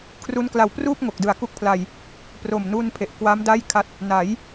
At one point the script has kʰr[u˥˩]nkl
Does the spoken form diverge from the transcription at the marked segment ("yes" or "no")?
yes